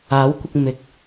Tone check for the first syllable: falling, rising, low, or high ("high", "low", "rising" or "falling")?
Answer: rising